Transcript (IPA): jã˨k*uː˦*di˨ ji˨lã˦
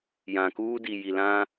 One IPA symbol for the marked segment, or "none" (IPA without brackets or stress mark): uː˦